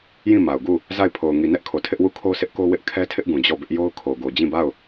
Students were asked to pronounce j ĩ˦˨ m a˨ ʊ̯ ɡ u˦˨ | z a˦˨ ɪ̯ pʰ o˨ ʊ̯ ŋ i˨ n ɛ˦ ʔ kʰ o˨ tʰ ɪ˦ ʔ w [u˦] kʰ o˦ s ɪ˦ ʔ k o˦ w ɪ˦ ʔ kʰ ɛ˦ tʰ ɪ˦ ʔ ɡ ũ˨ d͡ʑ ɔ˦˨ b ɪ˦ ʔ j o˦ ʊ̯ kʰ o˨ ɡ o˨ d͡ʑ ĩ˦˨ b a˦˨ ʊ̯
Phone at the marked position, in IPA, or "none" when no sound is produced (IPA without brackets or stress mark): u˦˨